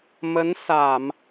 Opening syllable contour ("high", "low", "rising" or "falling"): rising